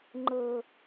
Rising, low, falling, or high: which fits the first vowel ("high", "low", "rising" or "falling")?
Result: low